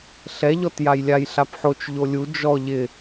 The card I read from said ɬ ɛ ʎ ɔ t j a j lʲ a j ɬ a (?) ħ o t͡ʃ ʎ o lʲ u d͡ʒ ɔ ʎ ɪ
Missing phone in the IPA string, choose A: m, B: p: B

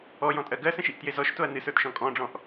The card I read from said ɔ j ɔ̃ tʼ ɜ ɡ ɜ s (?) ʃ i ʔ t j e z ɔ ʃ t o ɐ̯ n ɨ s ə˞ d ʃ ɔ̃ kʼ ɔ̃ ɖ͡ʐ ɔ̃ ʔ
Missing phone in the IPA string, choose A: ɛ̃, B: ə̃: B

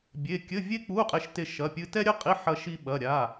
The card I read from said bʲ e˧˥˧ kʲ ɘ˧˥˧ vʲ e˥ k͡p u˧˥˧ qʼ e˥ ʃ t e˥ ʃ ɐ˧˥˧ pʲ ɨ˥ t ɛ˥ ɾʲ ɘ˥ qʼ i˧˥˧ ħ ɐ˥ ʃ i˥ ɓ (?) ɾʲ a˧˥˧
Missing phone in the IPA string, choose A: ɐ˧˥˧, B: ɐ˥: A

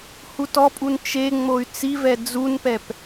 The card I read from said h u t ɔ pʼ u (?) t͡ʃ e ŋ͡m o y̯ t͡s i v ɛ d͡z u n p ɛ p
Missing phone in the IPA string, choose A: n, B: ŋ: A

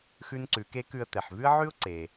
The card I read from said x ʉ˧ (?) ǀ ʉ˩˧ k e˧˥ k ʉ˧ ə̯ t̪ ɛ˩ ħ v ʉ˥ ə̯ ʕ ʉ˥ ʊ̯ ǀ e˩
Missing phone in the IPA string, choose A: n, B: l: A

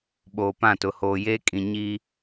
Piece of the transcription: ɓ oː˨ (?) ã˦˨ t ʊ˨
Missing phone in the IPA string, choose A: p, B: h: A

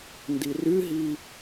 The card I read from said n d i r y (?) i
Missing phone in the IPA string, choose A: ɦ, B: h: A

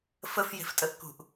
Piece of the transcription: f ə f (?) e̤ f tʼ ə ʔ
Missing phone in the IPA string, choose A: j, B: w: A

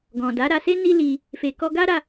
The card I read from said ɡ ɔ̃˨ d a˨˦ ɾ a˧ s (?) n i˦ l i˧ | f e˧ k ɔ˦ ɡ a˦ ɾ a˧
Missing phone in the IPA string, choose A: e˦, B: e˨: A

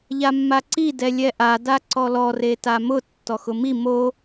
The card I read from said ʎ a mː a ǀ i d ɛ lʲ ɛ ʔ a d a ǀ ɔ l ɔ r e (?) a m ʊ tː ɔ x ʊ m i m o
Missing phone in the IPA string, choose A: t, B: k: A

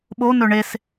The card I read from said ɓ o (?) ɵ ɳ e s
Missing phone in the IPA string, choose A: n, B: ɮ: A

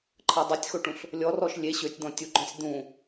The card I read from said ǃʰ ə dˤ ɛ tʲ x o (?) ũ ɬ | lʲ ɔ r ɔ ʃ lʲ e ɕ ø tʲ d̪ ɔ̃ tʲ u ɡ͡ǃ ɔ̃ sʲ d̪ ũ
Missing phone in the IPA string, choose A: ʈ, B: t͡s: A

